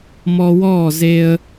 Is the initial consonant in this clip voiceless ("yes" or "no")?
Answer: no